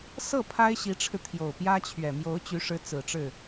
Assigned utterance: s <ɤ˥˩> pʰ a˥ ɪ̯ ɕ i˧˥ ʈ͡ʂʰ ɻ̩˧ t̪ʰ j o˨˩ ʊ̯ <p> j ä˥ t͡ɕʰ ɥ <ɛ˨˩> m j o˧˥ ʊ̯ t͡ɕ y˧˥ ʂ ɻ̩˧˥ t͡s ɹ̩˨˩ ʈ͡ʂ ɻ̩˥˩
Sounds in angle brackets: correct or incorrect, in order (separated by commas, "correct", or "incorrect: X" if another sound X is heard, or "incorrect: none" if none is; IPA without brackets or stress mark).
correct, correct, correct